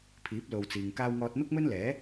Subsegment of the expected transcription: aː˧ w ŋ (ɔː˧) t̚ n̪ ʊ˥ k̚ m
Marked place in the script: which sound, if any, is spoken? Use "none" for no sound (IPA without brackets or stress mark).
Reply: ɔː˧